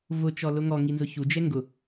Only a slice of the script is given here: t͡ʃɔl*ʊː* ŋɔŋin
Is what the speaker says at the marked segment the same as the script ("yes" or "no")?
no